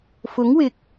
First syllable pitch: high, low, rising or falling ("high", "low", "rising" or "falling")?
rising